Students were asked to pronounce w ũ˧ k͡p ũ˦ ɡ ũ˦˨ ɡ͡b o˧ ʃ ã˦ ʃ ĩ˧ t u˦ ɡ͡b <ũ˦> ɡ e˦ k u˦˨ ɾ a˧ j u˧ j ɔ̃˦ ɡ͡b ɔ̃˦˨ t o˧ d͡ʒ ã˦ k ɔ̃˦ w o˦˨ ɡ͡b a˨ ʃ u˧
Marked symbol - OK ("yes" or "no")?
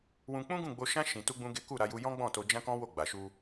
yes